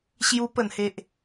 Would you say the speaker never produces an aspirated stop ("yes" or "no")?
yes